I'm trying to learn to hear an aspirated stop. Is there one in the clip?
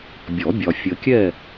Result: no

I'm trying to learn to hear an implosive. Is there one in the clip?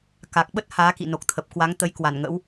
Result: yes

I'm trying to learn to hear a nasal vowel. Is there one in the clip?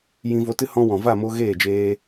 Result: yes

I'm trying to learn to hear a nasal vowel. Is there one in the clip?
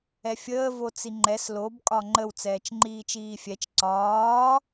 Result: no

